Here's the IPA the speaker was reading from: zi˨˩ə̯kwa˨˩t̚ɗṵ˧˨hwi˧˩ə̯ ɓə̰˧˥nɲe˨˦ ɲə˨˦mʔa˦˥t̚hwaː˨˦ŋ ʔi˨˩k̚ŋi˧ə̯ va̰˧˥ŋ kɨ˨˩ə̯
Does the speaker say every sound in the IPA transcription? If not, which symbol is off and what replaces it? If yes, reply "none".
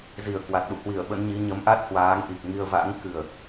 e˨˦ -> i˨˦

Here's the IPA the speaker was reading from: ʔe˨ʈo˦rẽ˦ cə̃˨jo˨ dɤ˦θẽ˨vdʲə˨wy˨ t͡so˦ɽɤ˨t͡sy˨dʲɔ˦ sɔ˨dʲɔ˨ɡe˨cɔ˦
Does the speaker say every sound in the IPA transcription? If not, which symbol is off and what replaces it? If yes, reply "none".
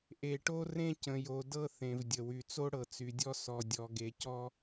none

